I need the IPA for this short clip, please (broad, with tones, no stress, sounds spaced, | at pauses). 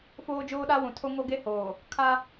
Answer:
f oː˦ d͡ʒ oː˦ ɗ a˦ w ũ˨ tʰ o˦ ŋ o˦ ɡ e˦ h oː˨ | kʰ a˦